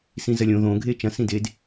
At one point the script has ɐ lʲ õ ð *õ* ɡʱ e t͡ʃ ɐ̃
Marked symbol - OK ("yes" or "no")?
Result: yes